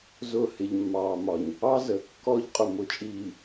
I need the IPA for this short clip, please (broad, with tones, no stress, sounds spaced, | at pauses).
z ʊ˦˨ h ɪ˨ ʎ mː ɑː˨ m ɒ˨ ɲ | ɑ˦ z ə˨ kː ɔ˦ ʎ qʼ ʊ˨ m ʊ˨ t͡ʃʼ iː˨